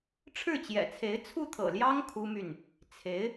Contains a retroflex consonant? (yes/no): yes